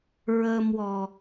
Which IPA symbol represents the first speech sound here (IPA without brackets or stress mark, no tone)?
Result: ɹ